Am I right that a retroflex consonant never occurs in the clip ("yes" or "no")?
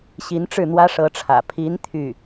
no